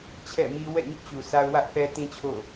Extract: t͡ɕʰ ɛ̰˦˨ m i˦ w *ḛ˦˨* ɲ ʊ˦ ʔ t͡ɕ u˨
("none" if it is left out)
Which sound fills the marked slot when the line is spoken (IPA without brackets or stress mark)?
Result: ɛ̰˦˨